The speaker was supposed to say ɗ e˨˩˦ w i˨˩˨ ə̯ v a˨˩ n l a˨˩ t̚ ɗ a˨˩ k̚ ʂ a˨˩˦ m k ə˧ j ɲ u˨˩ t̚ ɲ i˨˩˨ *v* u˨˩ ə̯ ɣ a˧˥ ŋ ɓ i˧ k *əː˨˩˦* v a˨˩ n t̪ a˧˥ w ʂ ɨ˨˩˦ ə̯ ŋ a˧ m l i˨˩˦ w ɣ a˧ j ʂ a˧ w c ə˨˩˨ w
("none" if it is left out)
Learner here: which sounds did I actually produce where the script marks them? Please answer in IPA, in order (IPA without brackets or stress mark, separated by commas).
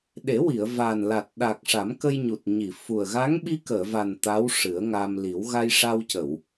f, əː˨˩˨